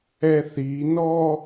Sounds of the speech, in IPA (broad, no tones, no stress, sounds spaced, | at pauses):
ɛ θ i n ɔ